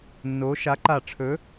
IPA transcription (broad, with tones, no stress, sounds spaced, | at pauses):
nː o˨˥ ʃ a˨˥ ǃ a˧˩ ʈ͡ʂʰ ɵ˨˥